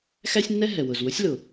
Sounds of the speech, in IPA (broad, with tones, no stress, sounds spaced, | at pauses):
x æ˥ sʲ nː ɛ˥ ɦ ɛ˩ w ʊ˩ z w ʊ˥ sʲ l ʊ˩